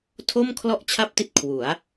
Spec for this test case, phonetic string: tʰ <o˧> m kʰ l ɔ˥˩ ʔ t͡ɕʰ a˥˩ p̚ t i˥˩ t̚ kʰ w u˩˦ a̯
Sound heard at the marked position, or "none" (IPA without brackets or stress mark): o˥˩